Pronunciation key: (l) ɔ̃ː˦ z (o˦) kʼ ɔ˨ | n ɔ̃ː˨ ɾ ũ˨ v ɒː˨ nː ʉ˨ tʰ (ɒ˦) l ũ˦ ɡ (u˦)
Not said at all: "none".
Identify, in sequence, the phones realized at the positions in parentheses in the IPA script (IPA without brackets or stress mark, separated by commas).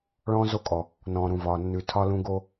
ɭ, o˦, ɒ˦, o˦